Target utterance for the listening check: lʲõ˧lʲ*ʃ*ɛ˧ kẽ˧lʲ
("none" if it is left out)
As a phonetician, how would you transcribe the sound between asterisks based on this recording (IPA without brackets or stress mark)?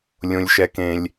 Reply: ʃ